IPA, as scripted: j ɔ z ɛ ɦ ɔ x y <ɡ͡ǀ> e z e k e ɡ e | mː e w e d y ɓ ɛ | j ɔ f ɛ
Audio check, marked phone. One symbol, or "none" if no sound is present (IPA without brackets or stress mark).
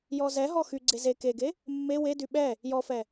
ɡ͡ǀ